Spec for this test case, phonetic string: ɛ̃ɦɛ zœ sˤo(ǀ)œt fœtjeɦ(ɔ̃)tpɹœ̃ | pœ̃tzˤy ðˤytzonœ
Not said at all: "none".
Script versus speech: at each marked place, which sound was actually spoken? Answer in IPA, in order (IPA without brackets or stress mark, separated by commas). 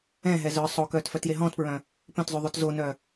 k, ɔ̃